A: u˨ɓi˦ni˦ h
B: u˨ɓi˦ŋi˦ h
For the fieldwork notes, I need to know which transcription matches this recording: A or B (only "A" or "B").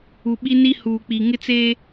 A